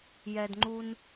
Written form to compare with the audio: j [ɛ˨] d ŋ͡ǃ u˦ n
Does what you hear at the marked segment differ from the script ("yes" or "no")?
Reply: no